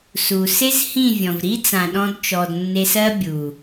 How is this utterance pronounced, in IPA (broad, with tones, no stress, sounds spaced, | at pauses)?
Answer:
s u˨ s e˦ z h ĩ˦˨ vʲ ɔ̃˨ v ɾ i˦ t͡s ã˨ ɗ ɔ̃˧ d t͡ʃ ɔ˨ d nː e˧ s ɜ˦ bʲ u˨